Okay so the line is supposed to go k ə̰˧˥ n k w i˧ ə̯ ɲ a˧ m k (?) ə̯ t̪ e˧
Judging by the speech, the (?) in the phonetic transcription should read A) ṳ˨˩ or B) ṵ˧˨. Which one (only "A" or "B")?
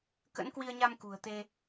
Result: A